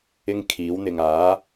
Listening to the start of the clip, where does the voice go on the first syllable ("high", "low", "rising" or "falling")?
high